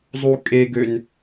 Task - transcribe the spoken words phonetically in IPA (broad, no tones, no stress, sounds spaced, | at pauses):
zˤ u kʼ e ɡ ø n